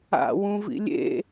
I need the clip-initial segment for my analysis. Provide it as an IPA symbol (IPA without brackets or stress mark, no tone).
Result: a̰